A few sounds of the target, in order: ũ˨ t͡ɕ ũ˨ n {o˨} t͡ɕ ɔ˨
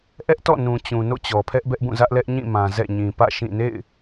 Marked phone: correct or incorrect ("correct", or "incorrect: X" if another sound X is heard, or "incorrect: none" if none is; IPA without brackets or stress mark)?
incorrect: o̰˦˨